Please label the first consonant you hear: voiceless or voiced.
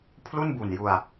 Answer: voiceless